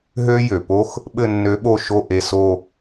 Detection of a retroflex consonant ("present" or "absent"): absent